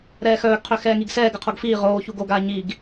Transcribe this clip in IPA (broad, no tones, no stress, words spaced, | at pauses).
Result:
ɾɛːxœːɡqʰø xɛːŋiɡsɛːɡə qʰoɡfiː ʁoː çuɡoɡaː ɲiɡ